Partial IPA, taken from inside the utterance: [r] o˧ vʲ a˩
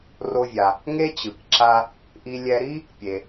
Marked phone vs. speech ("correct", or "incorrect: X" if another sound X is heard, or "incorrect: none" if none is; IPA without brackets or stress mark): correct